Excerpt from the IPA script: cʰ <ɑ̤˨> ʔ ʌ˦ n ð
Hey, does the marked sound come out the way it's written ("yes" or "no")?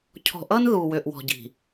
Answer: no